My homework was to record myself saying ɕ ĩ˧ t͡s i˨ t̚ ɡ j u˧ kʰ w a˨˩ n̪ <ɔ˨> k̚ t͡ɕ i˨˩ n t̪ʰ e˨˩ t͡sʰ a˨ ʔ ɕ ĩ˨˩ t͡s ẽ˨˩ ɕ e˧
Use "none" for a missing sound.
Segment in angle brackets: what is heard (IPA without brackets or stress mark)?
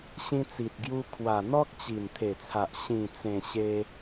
ɔ˦